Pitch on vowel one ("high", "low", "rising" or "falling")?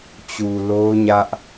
low